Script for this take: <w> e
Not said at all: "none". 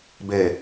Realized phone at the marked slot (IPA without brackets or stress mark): b